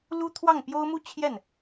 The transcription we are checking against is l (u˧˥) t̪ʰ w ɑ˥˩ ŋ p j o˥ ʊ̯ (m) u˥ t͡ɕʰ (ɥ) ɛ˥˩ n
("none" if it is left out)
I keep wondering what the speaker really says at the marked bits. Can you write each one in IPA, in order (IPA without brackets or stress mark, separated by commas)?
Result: u˥, m, j